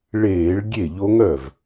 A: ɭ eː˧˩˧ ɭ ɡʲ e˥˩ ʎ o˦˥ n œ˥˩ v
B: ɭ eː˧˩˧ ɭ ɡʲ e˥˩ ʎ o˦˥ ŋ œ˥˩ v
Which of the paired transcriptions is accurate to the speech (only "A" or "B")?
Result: B